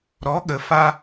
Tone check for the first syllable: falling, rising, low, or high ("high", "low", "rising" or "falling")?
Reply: rising